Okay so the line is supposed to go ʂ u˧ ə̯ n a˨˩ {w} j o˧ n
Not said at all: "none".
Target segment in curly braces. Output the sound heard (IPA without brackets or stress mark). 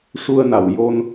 w